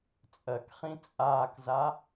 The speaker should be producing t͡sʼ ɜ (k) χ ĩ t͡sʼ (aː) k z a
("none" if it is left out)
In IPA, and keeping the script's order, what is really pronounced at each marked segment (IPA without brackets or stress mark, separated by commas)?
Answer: k, aː